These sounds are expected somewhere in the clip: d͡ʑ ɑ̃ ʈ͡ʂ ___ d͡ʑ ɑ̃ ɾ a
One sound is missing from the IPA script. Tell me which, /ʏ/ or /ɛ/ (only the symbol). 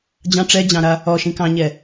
ɛ